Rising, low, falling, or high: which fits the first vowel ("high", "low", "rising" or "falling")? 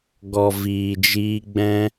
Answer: low